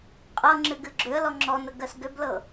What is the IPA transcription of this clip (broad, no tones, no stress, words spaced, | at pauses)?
qʼɤŋ͡ǁɨɡɨ ɡ͡ǁʏə̯lɔ ŋ͡ǁɔnəɡɜs ɡʏblɤ